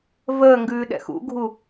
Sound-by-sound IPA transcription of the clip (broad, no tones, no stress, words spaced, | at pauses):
vəːŋɡʉːɗɛ̰ xṵɡʱu